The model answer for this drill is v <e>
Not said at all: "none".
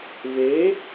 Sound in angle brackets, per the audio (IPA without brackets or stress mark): e